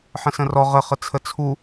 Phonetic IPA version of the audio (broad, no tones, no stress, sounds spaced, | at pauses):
ħ ə̃ s ə̃ r ɔ ʁ ə χ ə t͡sʰ ə t͡sʰ u